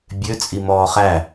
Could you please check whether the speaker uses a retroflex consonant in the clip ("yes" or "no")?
no